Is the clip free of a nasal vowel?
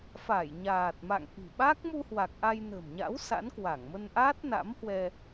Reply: yes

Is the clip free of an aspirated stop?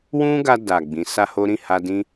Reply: yes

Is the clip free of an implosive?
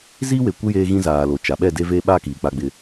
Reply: no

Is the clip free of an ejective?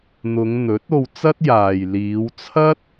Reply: yes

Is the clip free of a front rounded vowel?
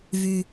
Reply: no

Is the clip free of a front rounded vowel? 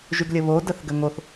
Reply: no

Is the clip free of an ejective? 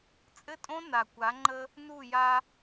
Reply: no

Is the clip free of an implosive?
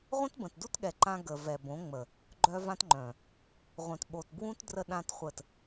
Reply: no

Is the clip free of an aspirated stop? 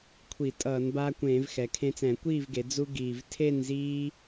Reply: no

